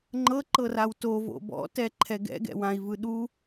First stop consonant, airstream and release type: click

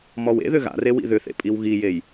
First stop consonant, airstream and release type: ejective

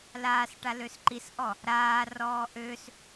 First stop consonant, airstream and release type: plain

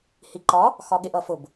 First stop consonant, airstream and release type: click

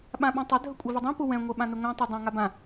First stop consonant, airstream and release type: implosive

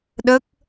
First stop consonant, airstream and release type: implosive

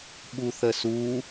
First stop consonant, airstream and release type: implosive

